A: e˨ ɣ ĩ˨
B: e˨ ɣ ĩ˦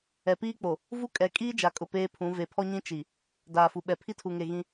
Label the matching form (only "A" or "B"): B